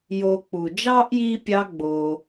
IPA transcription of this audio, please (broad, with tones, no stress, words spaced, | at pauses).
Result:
jo˨k͡pu˩d͡ʒɑ˥ʔji˦ pʲɑ˦ɡ͡bo˩